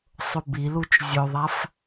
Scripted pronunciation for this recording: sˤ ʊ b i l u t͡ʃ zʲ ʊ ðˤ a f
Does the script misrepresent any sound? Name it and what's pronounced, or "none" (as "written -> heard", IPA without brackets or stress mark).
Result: none